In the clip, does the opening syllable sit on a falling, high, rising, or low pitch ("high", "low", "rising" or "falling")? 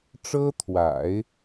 high